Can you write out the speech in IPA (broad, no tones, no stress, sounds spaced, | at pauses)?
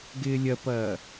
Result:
ɡ ɪː lʲ ɐ p ɐː